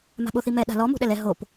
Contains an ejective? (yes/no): no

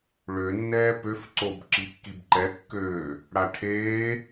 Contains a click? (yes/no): yes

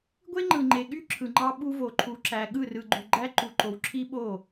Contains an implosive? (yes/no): yes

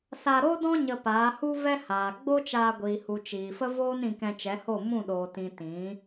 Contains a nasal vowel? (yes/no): yes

